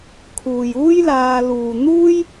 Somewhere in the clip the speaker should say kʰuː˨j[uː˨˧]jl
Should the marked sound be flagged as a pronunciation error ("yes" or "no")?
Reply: yes